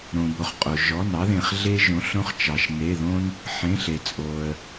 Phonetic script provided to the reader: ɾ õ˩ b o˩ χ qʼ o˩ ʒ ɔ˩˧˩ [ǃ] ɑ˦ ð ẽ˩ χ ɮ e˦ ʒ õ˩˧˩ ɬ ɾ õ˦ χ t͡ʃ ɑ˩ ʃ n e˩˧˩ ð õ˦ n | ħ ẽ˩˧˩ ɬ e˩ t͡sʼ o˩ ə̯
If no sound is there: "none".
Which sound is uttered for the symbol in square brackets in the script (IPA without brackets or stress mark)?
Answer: n